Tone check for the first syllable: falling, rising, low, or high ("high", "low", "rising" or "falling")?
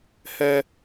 high